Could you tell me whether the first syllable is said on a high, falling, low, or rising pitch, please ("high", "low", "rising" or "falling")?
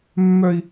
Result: high